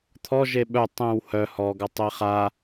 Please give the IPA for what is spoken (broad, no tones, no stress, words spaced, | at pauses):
t̪ʰɔ ʒeɓœ tˤẽw hœ hɔɡa tˤeχa